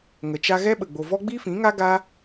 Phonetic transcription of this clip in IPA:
ŋə˨t͡ʃa˧ɣɛ˦ɓə˨ ɡ͡bo˨vɔ˦ ɡ͡bi˦fĩ˨˦ŋa˦ ɡa˦

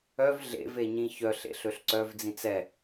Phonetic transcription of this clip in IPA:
œv ɮḛveɲĩ çœɬḛɬ øɬǀœvd͡zĩt͡s ɛ

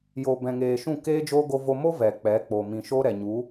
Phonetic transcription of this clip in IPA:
jo˨bɛ̃˨ŋeː˨ ʃũ˦˨keː˦d͡ʒoː˦ ɡo˧vo˧mo˦ vɛ˨k͡pɛ˨˦k͡po˨ mĩ˨ʃo˦ɾɛ˨ ɲu˨˦

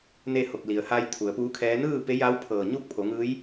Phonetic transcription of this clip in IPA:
ne˥˨ ho˧˩k̚li˩ə̯haː˧j t̪ʰu˩˧ə̯puː˧˥kʰɛː˧˥ nɯː˥˨pe˧˥ja˧˥w pʰɤː˧˩ ɲuː˥˨k̚pʰo˩˧ŋɯː˧˥j

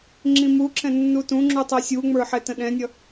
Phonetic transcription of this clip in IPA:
ŋ͡ǁĩmuǁɛ̃ nːutũŋ͡ǁu tˤɛsʲuŋ͡mə˞ ħɛtə̃ɗɛ̃nʲʌ

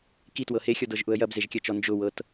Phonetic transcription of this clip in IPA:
kitwɤ hexʲɔdɤʒʔʊə̯ jɐbzeʒkʲɐt͡ʃɔ nd͡ʒʊwɤt

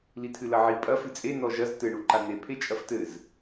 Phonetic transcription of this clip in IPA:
litʰɨlɐʕi pʼɐ fɨt͡sʼe nɔʒɐz tɘ ɳuǃan̪e pʰet͡ʃʼɐftɘz

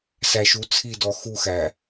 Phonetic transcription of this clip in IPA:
sæʃu t͡sʰidɔ xuxæ

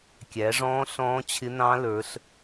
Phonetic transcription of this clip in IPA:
kʲæ˨˦ʐɔ̃ː˦˥ ɬɔ̃ː˦˥t͡ɕʰɪ˦˥nɑ̃˦˥lə˞˨˦ɬ

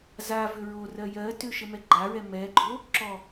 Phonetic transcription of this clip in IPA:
za vʏɹorɜ jɜtʏ ʃəmɛɡ͡ǃaɹɛ mɛɡ͡ǃo | ǁɔ

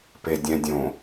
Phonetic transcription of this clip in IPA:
pedʲɛ̃dʲõ

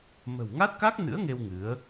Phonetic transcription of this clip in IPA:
mə̤˨˩wŋa˦˥t̚ka˦˥k̚nɨ̰˧˥ə̯ ŋe˧w ŋɨ˨˦ə̯

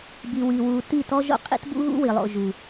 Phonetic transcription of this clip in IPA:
bi˨wi˨wu˨ ti˦˨tɔ˦ʒo̰˦ qʼḭ˦tbṵ˦ɣṵ˦ wi˨lˠo̰˨ ʒu˨

